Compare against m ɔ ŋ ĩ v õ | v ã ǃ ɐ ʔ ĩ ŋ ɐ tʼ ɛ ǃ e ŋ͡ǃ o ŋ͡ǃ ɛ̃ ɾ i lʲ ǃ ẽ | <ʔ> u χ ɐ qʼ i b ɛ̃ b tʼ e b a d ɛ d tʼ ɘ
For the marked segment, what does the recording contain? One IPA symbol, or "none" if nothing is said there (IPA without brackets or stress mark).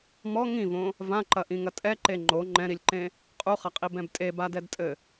qʼ